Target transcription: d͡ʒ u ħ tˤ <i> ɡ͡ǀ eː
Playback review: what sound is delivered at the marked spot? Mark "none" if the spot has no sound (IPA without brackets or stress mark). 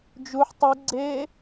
i